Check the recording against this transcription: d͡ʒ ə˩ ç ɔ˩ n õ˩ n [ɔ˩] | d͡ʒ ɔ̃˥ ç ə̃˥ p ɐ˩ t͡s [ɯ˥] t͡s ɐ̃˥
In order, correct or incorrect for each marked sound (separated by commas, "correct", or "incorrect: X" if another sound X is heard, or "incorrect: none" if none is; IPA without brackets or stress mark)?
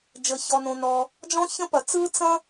correct, correct